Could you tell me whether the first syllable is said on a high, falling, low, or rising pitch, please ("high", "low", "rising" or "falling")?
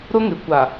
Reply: high